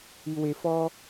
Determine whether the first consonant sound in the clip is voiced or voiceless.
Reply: voiced